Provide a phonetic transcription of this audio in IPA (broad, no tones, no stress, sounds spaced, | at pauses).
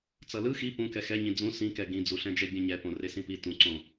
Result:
t͡s ʌ l ɯ x i p ũ k ɛ x ɛ ɲ ĩ d͡z ũ s ĩ k ɛ ɡ ĩ d͡z u ɬ ɛ̃ d͡ʒ ɛ bʲ ɛ̃ ɲ ɛ p õ r e s ĩ p i t ũ ǀ õ